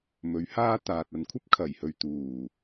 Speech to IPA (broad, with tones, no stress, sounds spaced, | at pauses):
m ɵ˨˥ ɥ h aː˥ t̪ aː˨ t̚ ɐ˨ n kʷʰ ɐ˥ p̚ kʰ ɐ˨˩ j h ɵ˨ ɥ t̪ uː˨˩